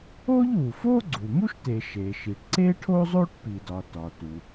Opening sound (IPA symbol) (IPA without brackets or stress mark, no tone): o